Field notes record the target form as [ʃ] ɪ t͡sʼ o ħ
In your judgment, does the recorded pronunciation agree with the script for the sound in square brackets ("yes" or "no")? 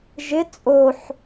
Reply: no